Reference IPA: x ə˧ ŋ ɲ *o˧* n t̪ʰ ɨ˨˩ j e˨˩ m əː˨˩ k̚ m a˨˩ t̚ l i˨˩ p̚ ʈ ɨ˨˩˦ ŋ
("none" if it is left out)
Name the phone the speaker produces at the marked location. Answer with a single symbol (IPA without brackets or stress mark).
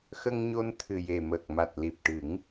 o˧